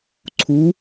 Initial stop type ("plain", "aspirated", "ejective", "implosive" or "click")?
click